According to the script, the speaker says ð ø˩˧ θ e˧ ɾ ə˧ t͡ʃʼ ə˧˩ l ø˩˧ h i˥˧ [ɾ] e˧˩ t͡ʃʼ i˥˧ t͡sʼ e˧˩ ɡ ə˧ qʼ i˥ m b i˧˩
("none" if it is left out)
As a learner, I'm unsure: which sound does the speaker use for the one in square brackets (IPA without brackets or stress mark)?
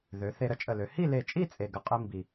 l